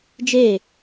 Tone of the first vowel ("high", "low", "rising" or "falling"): falling